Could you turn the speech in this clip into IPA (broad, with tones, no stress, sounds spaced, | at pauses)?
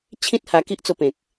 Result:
t͡ɕʰ ĩ˦ t̚ h a˧ k i˦ ʔ t͡s o˧ p ẽ˨ k̚